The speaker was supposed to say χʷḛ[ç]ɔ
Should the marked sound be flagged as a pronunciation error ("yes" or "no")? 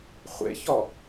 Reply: no